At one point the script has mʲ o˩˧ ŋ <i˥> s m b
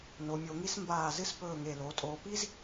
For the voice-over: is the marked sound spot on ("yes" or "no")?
yes